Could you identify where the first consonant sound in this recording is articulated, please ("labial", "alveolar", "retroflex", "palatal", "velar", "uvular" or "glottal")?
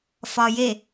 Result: labial